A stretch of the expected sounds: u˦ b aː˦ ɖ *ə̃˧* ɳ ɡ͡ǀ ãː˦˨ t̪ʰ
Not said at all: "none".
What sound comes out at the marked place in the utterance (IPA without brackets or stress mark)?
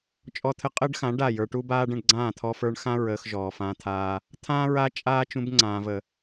ə̃˧